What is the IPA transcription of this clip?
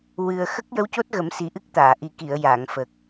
wɨ˨˩ə̯ xə˦˥k̚jə˧˥wco˦˥t̚ɣə˨˩˦m si˨˩ʔɨ˦˥k̚ t̪aː˨˩˨ʔi˨˩ki˨˩˨ə̯ jaː˨˩˨ŋ fə˨˩k̚

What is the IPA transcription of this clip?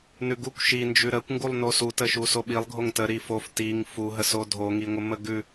nʉɡukʷ ʃind͡ʒʉ ɾəkʷŋɡulˠ nosutə ʃusoɓilˠ ɡʱoŋtə ɾifof tiŋ fuɦəso dʱoŋiŋʷə məɡʉ

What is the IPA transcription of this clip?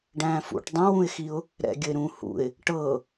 ɖæ̃ːfṵʈ dˤãwũɪ̯xiʊ̯ | ɾɛ̰ ɡʲəɪ̯ɾũ hṵɪ̯ | ʈɤ

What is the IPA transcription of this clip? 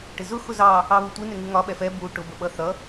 ʈɪzʊ xʊzɑ | ɑβutʷi nɪŋuŋɒ ɓɛfɛ bu ʈʊ bəɓʌθʌ

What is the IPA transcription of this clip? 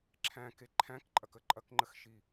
ǁʰæ̃ke ǃʰæ̃kǃʼɐkə ǃʼɐkŋ͡ǃəxʃi

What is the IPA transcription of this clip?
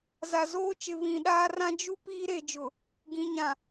za˨zoː˦t͡ʃɪ˨ βĩ˨ɗaː˦ rã˦ d͡ʒu˦ piː˦ɾe˨d͡ʒʊ˨ | ɡĩ˨ ɲã˨

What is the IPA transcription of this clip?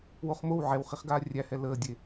woχmow ʕɛwχiχɡaː rʲæhɛ ləːdʲe

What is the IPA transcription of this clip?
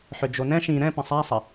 ħʏd͡ʒonɛ̃ ʃĩ ɾɛ̃pɐ̃ sˤasˤɐ

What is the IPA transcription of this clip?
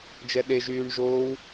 d͡ʒɛɗe ʒyːɳʒoːw

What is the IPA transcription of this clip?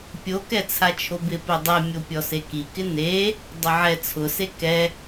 pʲokɛ t͡sʰat͡ʃʰobɪ pedˤɛ mʲopʲɔseki kɪne | dˤʊʕɛ t͡sʰʊse kɛ

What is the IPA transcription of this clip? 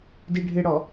diɖʱɪɽɔ

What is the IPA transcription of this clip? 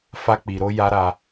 fa˧k͡pi˨ɾo˧ ja˧ɾa˧

